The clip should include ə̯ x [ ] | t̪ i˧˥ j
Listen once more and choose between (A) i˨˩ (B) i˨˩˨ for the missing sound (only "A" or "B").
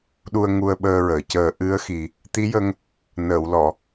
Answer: A